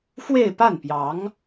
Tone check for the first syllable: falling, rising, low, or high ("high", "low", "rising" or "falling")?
falling